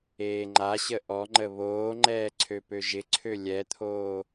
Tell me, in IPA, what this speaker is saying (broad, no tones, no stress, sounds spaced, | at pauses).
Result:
eː ŋ͡ǃ a ɕ ə ʔ ɔ ŋ͡ǃ ə β oː ŋ͡ǃ ɛː ǀʰ ø p ø ʒ ɪ ǀʰ ø lʲ ɛ t̪ʰ oː